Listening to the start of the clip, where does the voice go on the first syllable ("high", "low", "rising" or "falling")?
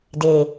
low